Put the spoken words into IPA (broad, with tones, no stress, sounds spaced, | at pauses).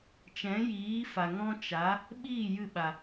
t͡ʃ ɛ̃˨˦ j iː˨˦ f a˨ ŋ ɔ̃˦ t͡ʃ a˨˦ | ɓ iː˦˨ j ɨ˦˨ ɓ a˨